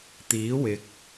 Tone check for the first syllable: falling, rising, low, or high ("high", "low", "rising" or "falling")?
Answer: rising